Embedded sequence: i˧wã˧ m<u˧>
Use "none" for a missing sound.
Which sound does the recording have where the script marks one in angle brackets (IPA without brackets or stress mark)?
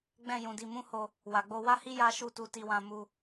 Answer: u˦